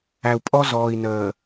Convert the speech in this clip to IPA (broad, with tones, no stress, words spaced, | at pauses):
æ˨u̯pʼɔ˦ zɔː˨i̯nəː˨